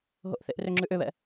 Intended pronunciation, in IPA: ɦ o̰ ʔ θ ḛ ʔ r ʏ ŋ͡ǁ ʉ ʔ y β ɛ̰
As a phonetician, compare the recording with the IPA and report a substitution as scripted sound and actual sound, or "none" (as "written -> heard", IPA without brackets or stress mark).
y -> ʏ